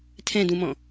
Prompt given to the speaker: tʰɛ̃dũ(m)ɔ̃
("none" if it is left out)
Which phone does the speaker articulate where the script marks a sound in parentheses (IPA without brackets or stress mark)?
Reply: m